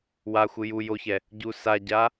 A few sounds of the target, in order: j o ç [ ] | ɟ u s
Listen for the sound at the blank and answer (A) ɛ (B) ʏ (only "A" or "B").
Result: A